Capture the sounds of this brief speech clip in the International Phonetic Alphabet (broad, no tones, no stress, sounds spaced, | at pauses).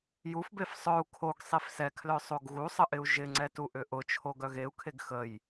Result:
j u f b e f sˤ œ u̯ kʰ o ɡ sˤ i f s ɛ kʰ l œ sˤ o ɡ ɣ u sˤ ə ʔ ɪ u̯ ʒ ɪ ŋ͡ǀ ɛ t u ʔ ʏ ʔ ʊ t͡ʃʰ o ɡ œ ɣ e u̯ kʰ e ɡ x ə j